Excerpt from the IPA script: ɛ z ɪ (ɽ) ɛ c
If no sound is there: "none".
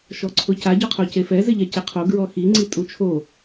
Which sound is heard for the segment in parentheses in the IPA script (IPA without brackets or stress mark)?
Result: ʎ